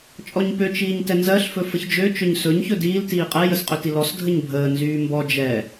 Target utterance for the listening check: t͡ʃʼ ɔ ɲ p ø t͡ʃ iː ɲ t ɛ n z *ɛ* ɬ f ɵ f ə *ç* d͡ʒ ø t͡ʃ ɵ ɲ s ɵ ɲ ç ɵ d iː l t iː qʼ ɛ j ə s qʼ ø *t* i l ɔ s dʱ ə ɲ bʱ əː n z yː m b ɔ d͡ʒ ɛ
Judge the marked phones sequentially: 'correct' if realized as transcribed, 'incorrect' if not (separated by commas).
incorrect, correct, correct